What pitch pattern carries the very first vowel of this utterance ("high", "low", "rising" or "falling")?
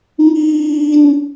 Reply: high